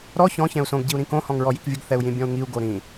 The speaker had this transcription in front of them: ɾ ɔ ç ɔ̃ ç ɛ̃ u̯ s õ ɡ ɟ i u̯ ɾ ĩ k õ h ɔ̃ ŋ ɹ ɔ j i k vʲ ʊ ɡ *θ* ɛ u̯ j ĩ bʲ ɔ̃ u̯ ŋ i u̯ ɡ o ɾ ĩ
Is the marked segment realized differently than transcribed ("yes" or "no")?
no